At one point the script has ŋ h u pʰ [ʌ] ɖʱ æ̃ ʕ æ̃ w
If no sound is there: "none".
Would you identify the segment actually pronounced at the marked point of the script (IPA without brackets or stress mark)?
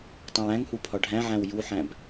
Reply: ɒ